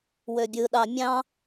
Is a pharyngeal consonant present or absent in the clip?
absent